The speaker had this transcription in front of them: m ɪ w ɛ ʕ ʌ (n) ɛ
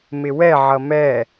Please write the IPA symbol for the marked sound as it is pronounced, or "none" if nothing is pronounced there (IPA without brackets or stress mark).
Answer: m